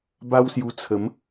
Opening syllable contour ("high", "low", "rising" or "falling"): high